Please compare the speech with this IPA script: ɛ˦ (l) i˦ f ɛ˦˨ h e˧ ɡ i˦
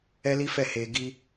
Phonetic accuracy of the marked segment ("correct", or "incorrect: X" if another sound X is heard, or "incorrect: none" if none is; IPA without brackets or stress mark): correct